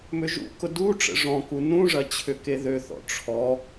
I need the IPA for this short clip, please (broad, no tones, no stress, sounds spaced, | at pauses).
m ʏ ʒ ṵ k ʊ d u ʈ͡ʂ ə̰ ʐ ɔ̃ k u n ũ ʐ ɐ t͡ɕʰ ʏ k e ð ø θ ɔ̰ ʈ͡ʂʰ ɔ